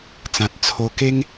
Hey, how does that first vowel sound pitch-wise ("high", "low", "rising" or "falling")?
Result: low